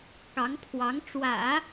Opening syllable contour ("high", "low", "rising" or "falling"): rising